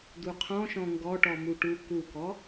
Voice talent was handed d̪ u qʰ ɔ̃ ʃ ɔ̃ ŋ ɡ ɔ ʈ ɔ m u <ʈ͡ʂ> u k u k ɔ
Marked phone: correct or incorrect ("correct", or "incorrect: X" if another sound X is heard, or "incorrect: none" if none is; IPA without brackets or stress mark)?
incorrect: ʈ